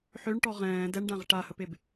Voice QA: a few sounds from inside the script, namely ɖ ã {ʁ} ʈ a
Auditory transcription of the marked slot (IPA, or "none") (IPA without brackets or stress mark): ʁ